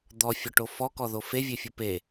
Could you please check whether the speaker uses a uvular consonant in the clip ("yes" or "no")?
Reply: no